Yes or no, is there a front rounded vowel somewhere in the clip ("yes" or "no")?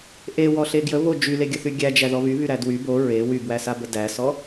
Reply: yes